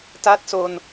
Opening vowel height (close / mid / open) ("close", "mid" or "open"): open